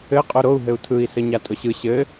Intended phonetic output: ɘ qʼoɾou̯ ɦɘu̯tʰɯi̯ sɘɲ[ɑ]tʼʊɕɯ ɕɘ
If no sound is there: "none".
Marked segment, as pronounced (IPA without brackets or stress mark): a